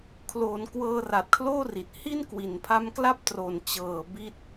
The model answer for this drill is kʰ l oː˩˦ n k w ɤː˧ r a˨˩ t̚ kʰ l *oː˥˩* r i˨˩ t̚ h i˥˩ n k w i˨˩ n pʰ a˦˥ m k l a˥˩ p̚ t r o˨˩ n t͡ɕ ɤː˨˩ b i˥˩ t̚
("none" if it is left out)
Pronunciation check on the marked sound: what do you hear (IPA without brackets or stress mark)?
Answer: oː˥˩